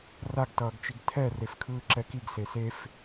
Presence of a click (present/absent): present